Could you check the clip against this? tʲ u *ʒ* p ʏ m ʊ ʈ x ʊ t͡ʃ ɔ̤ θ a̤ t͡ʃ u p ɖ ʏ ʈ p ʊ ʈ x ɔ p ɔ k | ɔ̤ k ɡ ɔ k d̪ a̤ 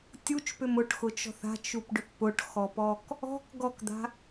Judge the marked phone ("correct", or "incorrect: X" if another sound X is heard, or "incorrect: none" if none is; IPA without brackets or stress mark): incorrect: t͡ʃ